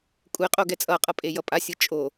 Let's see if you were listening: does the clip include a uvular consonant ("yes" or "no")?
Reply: yes